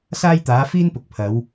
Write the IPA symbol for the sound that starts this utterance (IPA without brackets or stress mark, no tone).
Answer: s